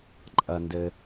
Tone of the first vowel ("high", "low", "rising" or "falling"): low